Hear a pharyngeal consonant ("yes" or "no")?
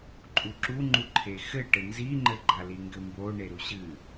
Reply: no